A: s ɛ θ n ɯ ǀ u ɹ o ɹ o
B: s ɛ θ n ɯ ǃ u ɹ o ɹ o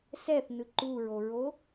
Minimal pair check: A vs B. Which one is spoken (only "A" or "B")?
B